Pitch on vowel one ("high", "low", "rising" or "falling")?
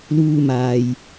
high